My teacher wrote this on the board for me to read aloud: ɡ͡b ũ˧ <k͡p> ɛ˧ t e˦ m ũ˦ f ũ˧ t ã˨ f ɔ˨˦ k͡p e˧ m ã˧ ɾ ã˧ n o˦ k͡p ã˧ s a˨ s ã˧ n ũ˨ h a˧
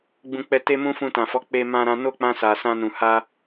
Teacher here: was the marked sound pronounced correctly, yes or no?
yes